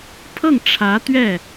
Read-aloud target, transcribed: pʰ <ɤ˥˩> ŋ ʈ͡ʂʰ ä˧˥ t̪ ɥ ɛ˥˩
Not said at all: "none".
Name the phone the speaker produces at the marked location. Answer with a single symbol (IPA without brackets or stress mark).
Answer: ɤ˥˩